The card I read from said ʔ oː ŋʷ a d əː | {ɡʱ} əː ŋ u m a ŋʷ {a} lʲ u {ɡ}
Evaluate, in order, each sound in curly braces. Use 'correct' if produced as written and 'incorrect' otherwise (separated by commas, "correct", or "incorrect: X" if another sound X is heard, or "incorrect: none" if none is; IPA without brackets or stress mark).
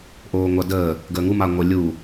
incorrect: ɡ, incorrect: ə, incorrect: none